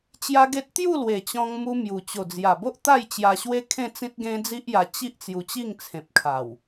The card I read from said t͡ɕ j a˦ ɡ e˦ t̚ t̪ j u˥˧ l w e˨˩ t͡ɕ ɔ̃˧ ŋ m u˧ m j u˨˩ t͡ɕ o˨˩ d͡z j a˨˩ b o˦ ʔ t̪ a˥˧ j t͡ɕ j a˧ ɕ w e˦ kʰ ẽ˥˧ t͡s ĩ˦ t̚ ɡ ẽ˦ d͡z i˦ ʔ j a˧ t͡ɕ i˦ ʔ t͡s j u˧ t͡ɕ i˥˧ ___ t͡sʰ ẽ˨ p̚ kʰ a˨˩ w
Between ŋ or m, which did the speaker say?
ŋ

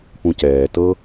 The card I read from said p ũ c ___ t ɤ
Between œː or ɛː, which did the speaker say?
ɛː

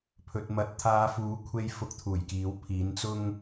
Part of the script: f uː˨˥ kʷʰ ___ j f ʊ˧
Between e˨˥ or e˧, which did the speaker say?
e˧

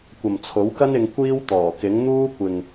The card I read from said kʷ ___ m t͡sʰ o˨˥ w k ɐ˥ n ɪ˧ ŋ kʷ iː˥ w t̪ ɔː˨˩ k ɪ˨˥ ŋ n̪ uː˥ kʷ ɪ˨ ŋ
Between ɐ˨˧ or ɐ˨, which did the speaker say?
ɐ˨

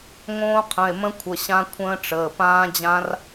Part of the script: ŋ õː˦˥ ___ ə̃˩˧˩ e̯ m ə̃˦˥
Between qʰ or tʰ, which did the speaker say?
qʰ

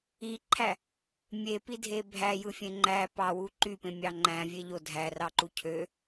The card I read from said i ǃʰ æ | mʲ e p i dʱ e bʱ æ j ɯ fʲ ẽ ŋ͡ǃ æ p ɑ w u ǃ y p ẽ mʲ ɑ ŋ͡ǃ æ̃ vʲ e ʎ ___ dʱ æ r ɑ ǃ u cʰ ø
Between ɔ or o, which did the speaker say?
o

